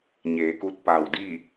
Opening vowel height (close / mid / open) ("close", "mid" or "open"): mid